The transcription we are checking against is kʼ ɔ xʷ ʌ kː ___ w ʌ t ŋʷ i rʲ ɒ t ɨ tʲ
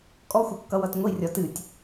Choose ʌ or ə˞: ʌ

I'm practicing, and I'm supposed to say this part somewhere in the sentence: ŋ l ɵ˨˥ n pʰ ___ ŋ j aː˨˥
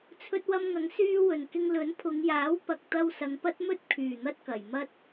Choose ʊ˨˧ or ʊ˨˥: ʊ˨˧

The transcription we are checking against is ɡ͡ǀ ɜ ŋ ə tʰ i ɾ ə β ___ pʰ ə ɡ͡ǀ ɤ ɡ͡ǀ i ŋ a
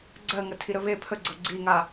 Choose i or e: e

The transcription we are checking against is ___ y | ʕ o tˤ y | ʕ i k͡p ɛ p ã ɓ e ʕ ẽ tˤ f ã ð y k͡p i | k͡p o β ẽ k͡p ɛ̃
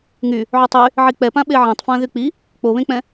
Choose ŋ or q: ŋ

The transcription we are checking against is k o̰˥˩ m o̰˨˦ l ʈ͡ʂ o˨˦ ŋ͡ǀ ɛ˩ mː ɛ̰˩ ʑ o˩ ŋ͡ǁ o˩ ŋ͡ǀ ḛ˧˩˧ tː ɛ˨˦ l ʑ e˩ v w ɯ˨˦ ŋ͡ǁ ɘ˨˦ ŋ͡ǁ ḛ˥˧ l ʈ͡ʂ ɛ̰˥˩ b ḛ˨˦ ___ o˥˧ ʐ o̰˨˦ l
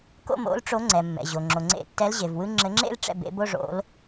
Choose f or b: b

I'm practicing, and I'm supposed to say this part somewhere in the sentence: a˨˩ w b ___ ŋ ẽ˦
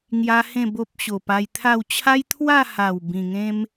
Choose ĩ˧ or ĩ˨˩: ĩ˨˩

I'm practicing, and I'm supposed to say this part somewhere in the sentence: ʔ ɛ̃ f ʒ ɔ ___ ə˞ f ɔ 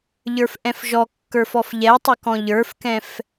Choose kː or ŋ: kː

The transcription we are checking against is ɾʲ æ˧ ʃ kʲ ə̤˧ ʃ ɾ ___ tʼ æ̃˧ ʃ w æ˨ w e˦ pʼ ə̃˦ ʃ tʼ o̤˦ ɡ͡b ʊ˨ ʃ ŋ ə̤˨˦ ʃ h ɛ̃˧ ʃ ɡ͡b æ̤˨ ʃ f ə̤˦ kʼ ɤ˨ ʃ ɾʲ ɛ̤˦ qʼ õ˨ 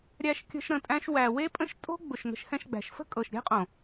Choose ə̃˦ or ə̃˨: ə̃˨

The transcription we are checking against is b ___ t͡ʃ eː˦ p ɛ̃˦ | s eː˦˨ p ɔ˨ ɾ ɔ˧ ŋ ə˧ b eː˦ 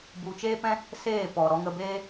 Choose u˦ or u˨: u˨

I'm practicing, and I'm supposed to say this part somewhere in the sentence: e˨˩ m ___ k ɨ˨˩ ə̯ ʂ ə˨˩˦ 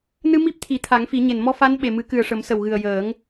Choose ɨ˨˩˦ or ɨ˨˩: ɨ˨˩˦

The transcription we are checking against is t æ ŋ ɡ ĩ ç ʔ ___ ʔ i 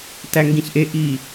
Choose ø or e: e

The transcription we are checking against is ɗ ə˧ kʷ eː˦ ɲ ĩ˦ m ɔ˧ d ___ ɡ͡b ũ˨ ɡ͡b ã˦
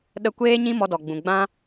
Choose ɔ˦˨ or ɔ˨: ɔ˨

